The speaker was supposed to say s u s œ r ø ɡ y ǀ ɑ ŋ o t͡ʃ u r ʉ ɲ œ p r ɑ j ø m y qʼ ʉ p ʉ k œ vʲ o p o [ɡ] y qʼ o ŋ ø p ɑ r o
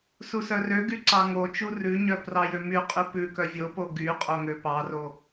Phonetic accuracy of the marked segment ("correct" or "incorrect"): correct